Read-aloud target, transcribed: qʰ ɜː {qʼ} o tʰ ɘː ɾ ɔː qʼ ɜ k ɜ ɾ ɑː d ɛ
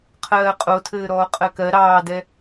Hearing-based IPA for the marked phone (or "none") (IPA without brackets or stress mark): qʼ